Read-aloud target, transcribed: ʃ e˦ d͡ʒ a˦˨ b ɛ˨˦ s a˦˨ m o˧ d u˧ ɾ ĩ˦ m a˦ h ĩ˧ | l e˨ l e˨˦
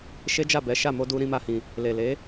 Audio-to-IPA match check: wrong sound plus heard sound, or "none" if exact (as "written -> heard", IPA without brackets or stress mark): s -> ʃ